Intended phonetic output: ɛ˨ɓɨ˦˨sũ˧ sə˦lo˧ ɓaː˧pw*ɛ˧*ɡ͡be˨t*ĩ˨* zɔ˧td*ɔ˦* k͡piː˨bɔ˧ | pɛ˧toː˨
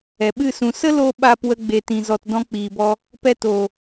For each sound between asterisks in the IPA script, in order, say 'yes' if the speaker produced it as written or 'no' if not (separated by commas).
no, yes, no